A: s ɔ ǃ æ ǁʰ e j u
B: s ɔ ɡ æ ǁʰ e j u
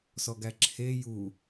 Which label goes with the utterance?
B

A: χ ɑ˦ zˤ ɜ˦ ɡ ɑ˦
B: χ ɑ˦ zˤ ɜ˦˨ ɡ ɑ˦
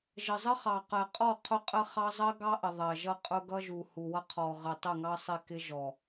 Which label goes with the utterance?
A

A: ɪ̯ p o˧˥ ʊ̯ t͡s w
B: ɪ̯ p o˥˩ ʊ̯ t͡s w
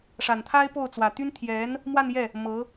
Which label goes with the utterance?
B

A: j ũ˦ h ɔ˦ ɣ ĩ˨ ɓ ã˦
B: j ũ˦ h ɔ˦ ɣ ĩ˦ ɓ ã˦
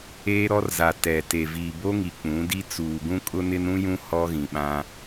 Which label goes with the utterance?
A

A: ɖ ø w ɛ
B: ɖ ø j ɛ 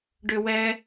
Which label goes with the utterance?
A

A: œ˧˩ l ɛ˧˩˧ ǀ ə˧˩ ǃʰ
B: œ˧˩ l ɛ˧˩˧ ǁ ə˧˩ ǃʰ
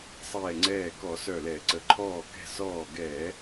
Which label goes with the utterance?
A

